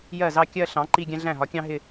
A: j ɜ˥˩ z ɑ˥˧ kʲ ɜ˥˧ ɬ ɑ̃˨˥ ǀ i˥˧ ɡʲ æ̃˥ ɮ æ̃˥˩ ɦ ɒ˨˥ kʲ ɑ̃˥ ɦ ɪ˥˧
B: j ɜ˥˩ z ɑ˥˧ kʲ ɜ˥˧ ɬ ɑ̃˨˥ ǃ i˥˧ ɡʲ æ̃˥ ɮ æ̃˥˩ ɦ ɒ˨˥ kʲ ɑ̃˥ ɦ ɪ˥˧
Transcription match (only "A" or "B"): B